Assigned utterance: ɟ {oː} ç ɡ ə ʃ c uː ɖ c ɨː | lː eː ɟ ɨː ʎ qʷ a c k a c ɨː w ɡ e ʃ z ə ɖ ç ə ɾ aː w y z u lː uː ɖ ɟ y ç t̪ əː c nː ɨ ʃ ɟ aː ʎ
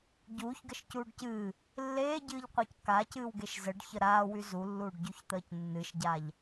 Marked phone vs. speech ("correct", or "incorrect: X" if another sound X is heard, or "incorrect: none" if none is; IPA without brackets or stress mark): incorrect: uː